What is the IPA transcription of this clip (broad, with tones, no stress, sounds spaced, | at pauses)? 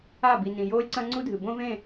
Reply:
a˦˨ b i˨ n ĩ˨ j oː˦ lʲ ǀ ɐ̃˦ ŋ͡ǀ u˦ dʱ ɨ˨ b õ˦ v ẽ˦˨